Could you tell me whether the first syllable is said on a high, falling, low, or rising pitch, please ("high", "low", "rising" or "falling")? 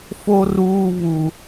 high